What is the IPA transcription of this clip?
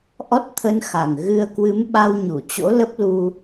ʔ ɔ˦˥ t̚ t̪ʰ ə˧ n x a˨˩ ŋ ɣ ɨ˧ ə̯ k w ɨ˨˦ m ɓ a˧ w ɲ u˧˩ t͡ɕ o̰˧˥ l ə˦˥ p̚ l u˧

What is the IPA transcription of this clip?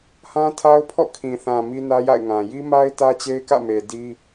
h ã˦ tʰ a˦ ʊ̯ pʰ ɔ̰˦˨ kʰ ĩ˨ θ ã˨ m i˦ n ä˦ j a̰˦˨ ɪ̯ ŋ ã˨ j i˦ m a˦ ɪ̯ t ä˦ t͡ɕ e˦ ɪ̯ k ä̰˦˨ m e˨ d i˦

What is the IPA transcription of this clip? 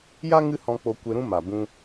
j a˦ ŋ ɨ˦ h ɔ̃˧ k͡p o˧ kʷ e˧ ɾ ũ˦ m a˨ b ũ˧

